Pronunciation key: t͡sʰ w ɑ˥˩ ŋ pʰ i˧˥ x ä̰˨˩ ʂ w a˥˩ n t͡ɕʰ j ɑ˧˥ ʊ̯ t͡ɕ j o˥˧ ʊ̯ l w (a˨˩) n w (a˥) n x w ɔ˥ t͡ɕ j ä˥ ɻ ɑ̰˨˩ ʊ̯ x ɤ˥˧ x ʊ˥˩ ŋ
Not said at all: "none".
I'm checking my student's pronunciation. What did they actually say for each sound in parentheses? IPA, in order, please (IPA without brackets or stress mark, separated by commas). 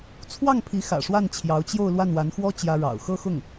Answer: a˥˩, a˧˥